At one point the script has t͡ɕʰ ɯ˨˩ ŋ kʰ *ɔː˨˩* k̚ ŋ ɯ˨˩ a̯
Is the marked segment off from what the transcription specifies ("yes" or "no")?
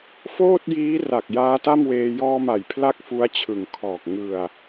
no